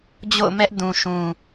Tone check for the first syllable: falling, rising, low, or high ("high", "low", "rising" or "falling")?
falling